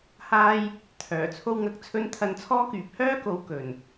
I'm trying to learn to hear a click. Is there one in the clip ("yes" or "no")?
no